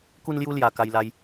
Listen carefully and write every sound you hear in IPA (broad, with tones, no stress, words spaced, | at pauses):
ku˦nlju˦ lja˧ ka˧jla˧j